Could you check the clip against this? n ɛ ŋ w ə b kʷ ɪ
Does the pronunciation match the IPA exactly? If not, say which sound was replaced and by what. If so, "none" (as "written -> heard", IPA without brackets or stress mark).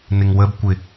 ɛ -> ɪ